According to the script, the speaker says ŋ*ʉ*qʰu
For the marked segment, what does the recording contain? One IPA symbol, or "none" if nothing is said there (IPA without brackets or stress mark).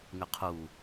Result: ʉ